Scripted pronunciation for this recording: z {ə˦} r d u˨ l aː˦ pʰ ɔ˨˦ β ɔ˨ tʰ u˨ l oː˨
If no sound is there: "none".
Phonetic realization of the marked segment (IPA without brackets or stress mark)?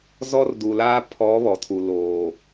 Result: ɔ˦